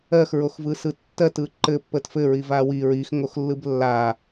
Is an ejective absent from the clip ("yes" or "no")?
yes